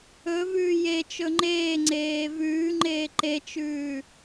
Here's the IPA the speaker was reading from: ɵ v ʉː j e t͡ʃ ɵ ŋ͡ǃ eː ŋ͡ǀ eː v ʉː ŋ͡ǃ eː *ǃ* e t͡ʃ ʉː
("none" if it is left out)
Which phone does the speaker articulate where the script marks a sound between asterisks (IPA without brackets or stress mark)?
ǃ